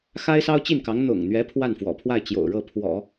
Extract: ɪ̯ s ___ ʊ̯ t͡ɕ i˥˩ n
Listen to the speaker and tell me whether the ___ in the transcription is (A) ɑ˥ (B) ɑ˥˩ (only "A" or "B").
A